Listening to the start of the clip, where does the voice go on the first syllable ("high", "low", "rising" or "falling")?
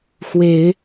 low